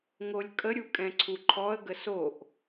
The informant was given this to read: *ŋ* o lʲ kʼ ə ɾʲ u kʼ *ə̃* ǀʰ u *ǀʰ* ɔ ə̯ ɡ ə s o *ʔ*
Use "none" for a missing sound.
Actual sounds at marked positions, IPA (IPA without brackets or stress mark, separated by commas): ŋ, ɛ̃, ǃʰ, ʔ